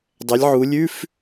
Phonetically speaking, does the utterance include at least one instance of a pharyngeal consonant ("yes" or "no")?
yes